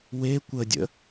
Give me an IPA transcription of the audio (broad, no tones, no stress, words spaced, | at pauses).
we kʷədʲə̰